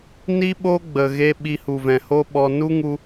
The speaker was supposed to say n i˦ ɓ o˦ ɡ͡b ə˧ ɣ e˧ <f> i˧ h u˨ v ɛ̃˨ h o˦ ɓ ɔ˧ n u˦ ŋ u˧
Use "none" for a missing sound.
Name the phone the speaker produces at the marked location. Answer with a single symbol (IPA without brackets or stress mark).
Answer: ɓ